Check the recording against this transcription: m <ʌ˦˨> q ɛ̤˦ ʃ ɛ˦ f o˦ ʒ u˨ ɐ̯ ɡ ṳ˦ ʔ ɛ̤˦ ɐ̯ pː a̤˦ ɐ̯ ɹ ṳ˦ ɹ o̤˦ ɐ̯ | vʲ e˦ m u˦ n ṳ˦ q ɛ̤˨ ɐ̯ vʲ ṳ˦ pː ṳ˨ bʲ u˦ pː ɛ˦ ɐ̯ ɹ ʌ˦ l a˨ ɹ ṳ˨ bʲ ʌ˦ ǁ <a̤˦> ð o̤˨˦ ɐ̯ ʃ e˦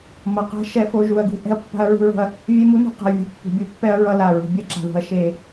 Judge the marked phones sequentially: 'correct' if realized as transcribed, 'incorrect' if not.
incorrect: ʌ˨, incorrect: a̤˨

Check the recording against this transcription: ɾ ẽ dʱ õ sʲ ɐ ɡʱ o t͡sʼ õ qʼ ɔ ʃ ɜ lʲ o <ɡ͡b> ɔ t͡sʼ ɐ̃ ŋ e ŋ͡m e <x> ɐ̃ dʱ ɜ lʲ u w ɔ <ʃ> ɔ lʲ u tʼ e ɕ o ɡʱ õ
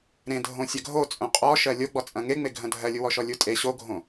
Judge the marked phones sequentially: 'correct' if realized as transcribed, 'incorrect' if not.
correct, incorrect: ɡʱ, correct

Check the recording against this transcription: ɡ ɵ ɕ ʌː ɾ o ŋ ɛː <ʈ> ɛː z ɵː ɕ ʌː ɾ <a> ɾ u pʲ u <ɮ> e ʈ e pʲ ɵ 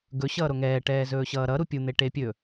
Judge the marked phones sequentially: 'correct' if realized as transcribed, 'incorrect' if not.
correct, incorrect: ʌ, incorrect: n̪

